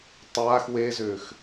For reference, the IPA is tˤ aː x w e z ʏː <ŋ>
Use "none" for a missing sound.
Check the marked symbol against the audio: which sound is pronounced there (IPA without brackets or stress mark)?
x